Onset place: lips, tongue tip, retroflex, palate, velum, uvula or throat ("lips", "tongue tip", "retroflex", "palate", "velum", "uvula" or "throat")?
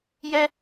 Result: palate